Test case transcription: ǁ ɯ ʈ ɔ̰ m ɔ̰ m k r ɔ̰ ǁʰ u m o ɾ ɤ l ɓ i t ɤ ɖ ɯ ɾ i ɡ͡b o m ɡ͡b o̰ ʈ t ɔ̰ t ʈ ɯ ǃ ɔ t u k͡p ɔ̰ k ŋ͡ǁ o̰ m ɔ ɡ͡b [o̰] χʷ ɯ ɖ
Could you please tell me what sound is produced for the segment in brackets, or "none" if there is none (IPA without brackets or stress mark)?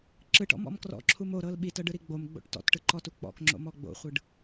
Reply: o̰